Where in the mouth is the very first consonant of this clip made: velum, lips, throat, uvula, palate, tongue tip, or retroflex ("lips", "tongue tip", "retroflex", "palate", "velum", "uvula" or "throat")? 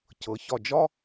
palate